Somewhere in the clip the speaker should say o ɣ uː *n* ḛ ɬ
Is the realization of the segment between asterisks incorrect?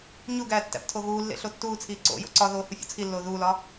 yes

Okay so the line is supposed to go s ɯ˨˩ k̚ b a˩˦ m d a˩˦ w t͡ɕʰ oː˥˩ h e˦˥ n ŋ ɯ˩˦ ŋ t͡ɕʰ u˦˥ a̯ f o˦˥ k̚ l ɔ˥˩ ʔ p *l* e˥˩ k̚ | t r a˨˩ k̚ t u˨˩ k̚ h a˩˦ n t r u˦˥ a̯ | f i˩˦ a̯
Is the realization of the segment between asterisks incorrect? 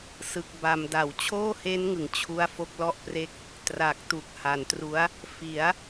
yes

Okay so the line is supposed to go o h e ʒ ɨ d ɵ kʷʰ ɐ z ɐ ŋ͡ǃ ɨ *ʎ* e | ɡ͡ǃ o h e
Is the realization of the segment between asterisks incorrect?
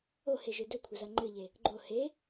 no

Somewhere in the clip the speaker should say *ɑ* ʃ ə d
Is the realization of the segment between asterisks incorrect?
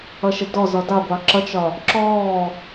yes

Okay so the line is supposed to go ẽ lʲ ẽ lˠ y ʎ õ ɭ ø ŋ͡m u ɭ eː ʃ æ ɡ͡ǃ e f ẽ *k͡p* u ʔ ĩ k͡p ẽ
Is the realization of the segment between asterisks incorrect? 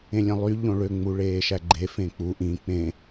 no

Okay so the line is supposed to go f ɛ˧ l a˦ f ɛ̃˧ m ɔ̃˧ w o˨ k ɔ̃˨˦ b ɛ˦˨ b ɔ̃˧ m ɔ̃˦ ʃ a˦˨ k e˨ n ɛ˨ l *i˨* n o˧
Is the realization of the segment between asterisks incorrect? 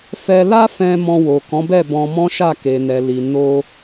no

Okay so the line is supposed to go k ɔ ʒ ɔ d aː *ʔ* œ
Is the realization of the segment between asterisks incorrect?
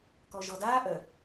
no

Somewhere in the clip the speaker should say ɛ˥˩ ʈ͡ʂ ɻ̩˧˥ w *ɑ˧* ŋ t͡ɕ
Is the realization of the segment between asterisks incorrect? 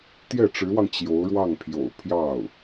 no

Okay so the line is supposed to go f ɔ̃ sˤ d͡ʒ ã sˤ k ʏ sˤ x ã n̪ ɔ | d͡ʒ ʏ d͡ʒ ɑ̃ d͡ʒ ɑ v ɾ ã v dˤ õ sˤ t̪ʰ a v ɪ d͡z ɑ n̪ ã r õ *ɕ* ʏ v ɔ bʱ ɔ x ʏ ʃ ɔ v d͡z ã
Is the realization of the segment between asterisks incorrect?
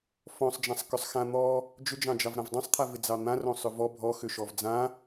yes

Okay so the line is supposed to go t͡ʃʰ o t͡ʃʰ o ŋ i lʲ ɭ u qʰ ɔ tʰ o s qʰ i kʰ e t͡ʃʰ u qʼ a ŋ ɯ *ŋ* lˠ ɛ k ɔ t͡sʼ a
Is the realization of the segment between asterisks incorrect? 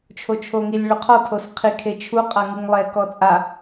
no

